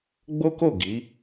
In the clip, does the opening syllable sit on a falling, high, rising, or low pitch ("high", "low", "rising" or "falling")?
high